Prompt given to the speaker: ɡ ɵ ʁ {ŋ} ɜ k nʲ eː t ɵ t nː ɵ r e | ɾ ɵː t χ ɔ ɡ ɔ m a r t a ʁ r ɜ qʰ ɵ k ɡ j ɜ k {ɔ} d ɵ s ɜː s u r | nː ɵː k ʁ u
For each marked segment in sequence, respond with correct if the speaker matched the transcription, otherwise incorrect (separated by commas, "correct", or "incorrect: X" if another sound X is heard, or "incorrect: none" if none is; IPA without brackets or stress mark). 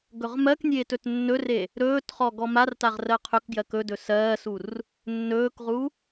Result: incorrect: m, incorrect: ɵ